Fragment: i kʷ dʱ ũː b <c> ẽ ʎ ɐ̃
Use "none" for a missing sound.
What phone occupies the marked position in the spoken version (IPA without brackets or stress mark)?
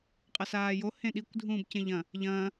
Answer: c